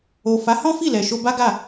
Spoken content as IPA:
o˨ f a˨˦ h ɔ̃˦ f i˦˨ l ɛ˨ ʃ o˧ b a˦ ɡ a˦˨

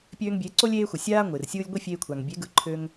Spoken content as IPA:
pʲ øː˧ ŋ bʲ e˨˦ ǀ o˦ lʲ eː˧ xʷ ɪ˨ sʲ aː˦ ŋʷ ɪː˨ r sʲ ɯː˦ lʲ ɡʷ i˦ fʲ eː˧ kʷʰ a˨ ŋ bʲ e˨˦ ɡ ɯ˨ ǃʰ ø˧ ŋ

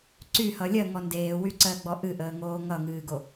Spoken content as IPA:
ǀ y h ʌ lʲ ɜ ŋ ɔ n d eː w y ǀ ɜ ɡ͡b ɔ ʔ ɨ ʔ əː ŋ oː ŋ ʌ ŋ ɨː ɡ o

